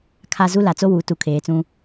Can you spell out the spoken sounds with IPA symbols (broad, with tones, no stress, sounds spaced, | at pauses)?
kʰ a˨ z u˦ l a˨ t͡s o˦ w u˨˦ t u˨ kʰ eː˨ t͡s ũ˦